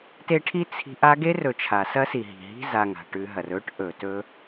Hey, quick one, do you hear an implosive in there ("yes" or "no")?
no